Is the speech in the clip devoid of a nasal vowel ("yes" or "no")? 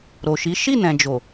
no